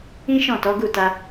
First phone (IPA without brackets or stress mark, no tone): ĩ